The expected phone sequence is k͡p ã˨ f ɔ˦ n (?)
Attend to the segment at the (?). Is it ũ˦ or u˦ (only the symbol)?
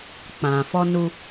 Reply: u˦